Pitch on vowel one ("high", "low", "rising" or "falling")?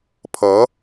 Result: rising